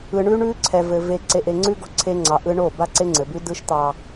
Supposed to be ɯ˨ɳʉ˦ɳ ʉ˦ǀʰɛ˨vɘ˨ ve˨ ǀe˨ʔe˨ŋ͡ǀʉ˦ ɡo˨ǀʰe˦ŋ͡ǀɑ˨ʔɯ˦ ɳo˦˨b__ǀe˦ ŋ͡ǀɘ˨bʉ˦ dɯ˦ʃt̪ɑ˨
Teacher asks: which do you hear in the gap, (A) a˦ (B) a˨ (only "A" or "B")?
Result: A